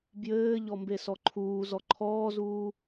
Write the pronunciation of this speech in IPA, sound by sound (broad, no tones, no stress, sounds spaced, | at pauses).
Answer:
b j ɘː ʎ ɔ m b e s ɔ ǃʰ uː z ɔ ǃʰ ɔː z uː